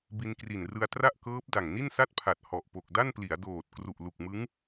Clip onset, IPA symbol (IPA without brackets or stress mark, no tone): b